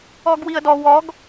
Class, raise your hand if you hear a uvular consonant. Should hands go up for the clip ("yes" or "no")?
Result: no